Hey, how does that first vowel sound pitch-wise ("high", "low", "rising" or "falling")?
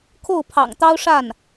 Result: falling